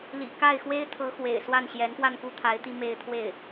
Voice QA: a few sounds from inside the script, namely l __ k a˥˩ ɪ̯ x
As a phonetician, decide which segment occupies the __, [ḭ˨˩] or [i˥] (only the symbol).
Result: ḭ˨˩